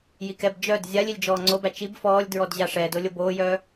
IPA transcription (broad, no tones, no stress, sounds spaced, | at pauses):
j i k ɛ b d͡ʒ œ d zʲ a lʲ i lʲ d͡ʒ ɔː ŋ͡ǀ o b æ t͡ʃ i b f ɔː lʲ d ɹ ɔ d ʑ a ʂ ɛː d o lʲ o b oː j œː